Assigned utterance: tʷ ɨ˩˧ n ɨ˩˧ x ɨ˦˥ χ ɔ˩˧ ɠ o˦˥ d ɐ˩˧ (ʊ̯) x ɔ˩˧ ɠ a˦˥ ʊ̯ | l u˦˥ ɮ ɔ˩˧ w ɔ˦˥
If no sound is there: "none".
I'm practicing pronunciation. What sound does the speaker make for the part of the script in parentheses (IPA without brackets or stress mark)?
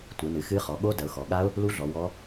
ʊ̯